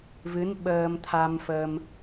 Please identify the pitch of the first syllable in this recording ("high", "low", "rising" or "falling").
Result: rising